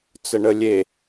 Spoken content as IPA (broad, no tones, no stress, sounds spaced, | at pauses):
t͡s ə ɳ ə lʲ e